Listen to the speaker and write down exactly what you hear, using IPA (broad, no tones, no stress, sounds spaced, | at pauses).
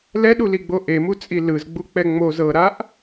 l ɛ ɗ u l i ɡ͡b o ʔ e m u t͡sʼ i l ɯ z ɡ͡b u k͡p ɛ ŋ͡m o z ɤ ɾ a ʔ